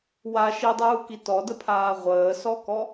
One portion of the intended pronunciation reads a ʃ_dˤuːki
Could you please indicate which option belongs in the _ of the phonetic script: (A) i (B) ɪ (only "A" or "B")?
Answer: A